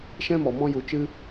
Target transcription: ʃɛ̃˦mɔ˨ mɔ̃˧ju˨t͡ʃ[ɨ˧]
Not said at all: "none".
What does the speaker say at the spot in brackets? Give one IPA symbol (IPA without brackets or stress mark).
ɨ˧